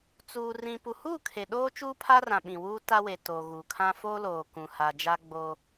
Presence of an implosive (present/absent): present